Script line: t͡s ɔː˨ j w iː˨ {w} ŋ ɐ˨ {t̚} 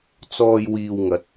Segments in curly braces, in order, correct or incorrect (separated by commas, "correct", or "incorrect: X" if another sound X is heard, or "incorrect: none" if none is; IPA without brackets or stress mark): correct, correct